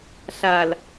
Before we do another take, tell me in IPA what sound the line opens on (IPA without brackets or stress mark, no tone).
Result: ɬ